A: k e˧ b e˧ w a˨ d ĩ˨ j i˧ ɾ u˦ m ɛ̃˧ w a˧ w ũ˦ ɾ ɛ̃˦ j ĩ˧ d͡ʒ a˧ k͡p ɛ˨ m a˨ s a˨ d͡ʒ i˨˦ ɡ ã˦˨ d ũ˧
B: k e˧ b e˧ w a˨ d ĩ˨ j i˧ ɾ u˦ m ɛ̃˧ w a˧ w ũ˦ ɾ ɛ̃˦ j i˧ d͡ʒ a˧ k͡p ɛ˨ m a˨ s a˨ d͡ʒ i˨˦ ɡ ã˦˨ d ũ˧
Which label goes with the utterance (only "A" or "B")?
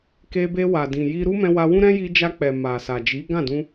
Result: B